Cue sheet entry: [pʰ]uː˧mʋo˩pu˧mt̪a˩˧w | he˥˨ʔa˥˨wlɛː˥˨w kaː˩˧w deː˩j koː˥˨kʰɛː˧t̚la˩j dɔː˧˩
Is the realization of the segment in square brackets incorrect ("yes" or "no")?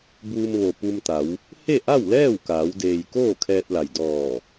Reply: yes